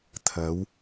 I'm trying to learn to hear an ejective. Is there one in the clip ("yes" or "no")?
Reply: no